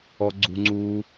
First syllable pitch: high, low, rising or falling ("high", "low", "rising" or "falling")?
low